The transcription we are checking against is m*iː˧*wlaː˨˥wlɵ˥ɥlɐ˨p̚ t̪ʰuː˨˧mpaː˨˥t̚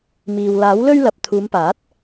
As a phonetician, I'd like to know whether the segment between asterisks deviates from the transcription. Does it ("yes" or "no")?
yes